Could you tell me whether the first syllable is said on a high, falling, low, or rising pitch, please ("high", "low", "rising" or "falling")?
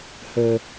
low